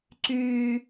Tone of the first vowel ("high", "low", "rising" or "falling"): low